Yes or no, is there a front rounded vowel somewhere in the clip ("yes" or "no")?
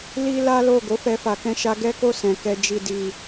no